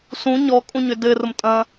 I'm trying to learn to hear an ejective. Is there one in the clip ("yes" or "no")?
yes